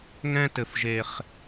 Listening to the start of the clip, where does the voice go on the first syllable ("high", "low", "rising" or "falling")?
high